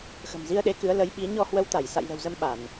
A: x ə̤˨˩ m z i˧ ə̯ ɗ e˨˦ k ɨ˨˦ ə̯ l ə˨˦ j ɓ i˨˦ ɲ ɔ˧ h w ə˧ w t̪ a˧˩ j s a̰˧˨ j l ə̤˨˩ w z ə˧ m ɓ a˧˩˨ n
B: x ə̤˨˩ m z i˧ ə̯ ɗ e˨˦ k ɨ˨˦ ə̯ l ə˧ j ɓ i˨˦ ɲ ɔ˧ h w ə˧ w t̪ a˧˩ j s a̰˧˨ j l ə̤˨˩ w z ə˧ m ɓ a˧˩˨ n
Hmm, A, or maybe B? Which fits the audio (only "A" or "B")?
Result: A